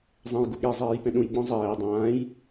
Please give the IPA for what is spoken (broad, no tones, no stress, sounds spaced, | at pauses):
zˤ ɛ̃ j ɡ u ɠ e zˤ ɛː j p ɛ̃ ɗ ũ j ɡ͡b ɔ̃ zˤ ɛː dˤ ãː j